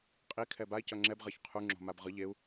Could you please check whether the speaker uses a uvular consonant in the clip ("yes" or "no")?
yes